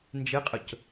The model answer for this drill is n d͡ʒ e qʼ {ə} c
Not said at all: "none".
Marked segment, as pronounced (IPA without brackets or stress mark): ə